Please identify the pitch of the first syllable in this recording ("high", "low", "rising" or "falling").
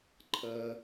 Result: high